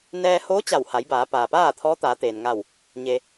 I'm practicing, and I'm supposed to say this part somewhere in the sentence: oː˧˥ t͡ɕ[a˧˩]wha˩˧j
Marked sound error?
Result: no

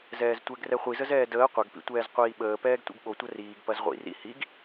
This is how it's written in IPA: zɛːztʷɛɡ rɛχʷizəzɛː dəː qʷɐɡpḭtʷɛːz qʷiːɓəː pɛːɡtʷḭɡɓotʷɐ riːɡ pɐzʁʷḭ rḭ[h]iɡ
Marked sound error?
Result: no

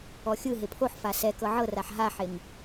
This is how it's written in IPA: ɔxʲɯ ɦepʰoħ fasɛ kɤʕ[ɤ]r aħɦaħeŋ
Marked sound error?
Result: no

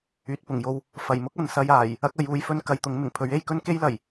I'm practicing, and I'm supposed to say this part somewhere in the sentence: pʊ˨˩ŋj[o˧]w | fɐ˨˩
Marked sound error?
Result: no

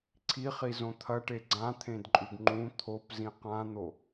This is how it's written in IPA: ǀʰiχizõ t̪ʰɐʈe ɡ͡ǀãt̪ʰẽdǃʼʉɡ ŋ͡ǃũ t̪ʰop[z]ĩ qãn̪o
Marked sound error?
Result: no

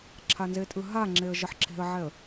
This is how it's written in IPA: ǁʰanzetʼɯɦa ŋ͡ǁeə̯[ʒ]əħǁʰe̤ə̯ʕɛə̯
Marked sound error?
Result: no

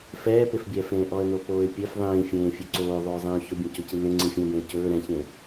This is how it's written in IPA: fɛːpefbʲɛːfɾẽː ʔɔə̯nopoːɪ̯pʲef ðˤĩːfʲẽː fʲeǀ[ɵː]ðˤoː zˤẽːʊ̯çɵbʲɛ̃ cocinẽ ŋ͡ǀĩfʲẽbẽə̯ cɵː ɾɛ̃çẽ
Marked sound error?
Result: yes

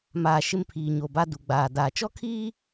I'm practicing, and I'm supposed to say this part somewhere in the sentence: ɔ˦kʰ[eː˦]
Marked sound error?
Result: yes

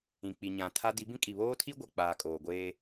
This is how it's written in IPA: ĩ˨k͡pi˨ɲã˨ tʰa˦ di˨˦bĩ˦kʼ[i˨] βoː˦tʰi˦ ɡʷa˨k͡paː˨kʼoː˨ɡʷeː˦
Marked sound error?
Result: no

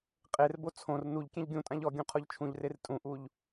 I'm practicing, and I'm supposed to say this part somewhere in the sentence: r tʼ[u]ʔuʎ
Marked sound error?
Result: yes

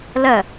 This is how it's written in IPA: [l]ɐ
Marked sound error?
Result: no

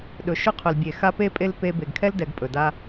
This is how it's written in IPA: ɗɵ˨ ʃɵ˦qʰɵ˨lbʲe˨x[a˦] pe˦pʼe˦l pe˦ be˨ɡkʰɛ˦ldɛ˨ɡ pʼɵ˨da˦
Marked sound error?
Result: no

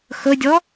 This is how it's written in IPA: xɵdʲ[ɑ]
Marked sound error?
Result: yes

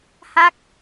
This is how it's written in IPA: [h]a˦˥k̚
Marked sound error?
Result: no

